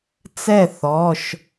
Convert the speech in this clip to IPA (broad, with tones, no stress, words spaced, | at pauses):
t͡sɛ˥˩θɔ˩˧˩ʃ